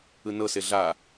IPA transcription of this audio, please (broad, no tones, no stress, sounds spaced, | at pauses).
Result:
ɯ n ɤ s e ɮ a